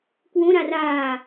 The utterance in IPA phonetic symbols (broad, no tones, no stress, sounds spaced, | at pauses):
k w õ ɾ a r aː